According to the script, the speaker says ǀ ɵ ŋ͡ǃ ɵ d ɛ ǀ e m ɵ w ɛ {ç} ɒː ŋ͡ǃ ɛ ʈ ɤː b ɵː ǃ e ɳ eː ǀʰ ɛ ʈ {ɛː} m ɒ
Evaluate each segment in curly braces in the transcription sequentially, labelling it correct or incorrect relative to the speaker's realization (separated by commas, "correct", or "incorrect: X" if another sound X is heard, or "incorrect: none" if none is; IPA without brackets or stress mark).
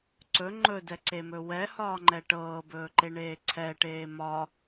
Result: incorrect: h, incorrect: eː